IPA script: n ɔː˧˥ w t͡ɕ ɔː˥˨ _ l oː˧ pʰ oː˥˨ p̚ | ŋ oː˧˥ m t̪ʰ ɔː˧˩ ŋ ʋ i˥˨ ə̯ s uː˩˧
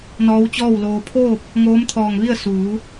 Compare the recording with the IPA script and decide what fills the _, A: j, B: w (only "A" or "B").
B